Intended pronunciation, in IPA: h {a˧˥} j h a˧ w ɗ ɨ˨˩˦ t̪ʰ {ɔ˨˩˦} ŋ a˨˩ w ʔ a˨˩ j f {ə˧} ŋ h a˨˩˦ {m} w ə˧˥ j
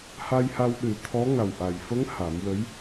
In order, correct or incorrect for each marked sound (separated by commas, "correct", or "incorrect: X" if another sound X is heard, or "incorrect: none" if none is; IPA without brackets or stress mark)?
incorrect: a˧, incorrect: ɔ˧˥, incorrect: ə˧˥, correct